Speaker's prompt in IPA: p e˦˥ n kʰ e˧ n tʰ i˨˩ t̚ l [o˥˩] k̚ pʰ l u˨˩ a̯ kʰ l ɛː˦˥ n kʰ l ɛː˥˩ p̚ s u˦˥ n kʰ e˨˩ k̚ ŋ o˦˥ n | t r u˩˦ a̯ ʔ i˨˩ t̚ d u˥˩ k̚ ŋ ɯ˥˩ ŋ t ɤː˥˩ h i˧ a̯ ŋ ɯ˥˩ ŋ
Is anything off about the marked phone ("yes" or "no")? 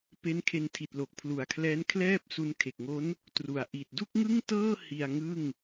yes